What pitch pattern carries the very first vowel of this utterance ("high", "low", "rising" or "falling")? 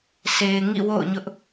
low